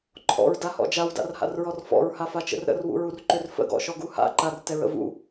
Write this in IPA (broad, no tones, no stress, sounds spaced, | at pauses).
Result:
ǃʰ ɔ̰ ɹ d a h ɔ̰ d͡ʒ a w d a̰ r h a̰ r ɹ ɔ r f ɔ̰ ɹ h a f a t͡ʃ ə̰ r ɾ ə̰ r w ṵ ɹ u r ǃ ø r f ə̰ ɡ ɔ̰ ʃ ɔ ɡ u h a̰ ǃ a r t ɛ ɹ ə̰ v ṵ